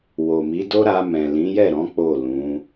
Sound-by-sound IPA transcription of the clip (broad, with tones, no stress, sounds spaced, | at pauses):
w o˨ m i˨˦ d o˦ ɾ a˧ m ɛ̃˨ l ĩ˨˦ j ɛ˦˨ ɾ ɔ̃˨˦ k͡p o˦˨ l ũ˨˦